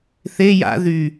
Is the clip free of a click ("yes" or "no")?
yes